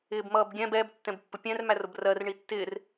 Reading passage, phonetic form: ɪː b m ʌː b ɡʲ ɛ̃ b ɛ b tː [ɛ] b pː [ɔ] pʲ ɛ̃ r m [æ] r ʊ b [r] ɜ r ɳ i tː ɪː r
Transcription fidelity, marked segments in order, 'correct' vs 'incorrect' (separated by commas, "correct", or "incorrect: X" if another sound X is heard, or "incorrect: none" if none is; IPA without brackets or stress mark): incorrect: ɛ̃, incorrect: ʊ, correct, correct